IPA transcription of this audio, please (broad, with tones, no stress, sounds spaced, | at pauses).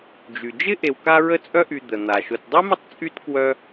d͡ʒ y˩ d͡ʒ ɪ˥ ʔ e˨ w k a˦ ɹ ə˦ t͡sʼ œ˦ ʔ y˨ d̪ ə˩ n̪ a˩ ʃ ʊ˩ t dˤ e˥ m ʏ˦ tˤ t͡sʼ y˥ t k w œ˥